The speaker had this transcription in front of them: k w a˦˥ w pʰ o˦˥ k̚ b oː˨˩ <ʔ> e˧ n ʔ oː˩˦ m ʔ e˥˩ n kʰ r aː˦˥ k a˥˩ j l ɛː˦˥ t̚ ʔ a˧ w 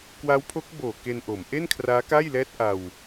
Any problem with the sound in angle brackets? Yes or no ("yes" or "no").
yes